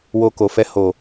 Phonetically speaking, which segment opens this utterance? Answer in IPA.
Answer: w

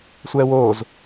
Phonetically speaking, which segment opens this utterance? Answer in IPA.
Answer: sʷ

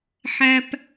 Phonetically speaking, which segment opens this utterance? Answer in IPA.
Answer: ħ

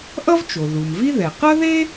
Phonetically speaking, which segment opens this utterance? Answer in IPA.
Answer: ʔ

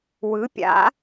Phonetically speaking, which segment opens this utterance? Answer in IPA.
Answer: w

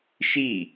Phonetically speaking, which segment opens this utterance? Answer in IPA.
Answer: ʃ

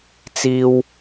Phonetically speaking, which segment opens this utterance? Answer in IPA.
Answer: t͡s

